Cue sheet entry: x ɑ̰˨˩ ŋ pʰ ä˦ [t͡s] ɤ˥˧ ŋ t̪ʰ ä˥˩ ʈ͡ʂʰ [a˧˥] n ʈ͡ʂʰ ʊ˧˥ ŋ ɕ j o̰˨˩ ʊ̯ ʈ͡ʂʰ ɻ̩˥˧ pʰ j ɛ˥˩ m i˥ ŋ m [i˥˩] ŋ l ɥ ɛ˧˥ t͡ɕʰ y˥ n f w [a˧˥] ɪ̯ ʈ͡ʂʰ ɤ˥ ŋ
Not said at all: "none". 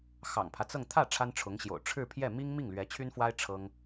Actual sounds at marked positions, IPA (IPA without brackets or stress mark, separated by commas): t͡s, a˥, i˥˩, a˥